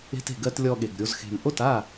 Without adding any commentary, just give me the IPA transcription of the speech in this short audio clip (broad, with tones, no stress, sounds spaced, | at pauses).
e̤˧ t e̤˨ ɡ ɜ˧ t lʲ ɔ˧ ɠ e˨ ɡ ɾʲ o˧ z x e̤˨ m ʔ o˦˨ t a˦˨